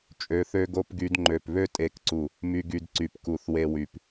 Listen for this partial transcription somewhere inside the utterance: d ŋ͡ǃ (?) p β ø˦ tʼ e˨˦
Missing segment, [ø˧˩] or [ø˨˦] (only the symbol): ø˧˩